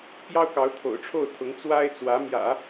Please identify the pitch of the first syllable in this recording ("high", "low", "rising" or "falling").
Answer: high